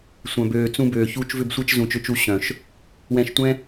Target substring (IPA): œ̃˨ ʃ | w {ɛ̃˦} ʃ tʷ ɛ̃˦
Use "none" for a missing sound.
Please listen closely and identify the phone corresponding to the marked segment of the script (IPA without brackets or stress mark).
ɛ̃˧